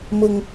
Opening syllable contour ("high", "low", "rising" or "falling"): high